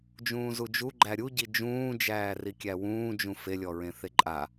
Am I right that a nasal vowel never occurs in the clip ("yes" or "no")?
no